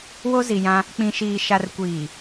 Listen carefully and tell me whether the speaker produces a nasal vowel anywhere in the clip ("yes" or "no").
yes